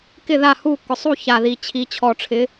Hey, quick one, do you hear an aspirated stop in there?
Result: yes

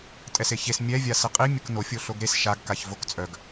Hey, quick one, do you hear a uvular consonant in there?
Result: yes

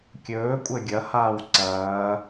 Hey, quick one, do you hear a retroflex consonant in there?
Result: no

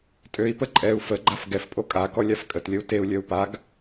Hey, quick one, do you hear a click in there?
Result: yes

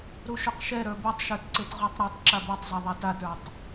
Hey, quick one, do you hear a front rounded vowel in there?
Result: no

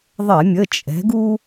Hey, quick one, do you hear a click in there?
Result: no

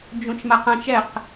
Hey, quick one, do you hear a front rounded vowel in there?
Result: no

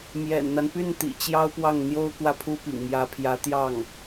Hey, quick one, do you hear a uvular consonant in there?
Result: no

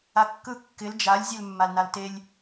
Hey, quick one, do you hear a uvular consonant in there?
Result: no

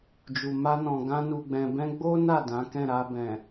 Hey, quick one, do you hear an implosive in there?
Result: no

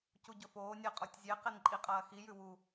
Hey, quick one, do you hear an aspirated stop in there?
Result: no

